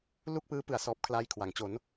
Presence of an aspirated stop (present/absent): present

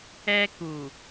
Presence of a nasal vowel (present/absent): absent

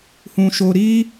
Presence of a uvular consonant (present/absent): absent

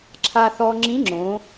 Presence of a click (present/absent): present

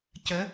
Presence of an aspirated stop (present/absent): absent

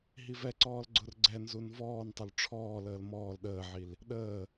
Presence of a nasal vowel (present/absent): absent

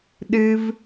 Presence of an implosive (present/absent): present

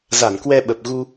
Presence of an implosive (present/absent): present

